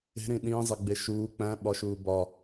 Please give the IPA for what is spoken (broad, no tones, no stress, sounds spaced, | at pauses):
e̤ ɾ ĩ ɗ ĩː zˤ e ɡ͡b e ʃ uː k͡p æ̃ ɓ ɒ ʃ uː b ɒ